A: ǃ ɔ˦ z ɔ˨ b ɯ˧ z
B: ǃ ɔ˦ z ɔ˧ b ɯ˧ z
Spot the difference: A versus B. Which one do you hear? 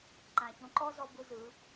B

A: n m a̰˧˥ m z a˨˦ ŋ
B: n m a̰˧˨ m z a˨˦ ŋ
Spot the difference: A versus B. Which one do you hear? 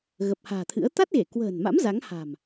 A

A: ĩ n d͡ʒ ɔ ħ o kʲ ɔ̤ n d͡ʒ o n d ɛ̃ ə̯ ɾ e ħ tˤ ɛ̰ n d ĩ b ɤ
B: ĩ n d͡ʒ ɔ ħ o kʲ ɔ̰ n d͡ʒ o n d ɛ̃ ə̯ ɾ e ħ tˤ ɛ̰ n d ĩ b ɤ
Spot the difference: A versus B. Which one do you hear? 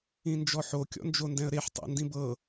B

